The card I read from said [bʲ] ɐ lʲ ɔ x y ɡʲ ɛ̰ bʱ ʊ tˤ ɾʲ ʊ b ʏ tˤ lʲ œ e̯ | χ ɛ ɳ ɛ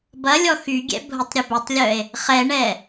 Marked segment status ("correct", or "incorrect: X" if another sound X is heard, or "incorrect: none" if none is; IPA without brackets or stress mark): incorrect: b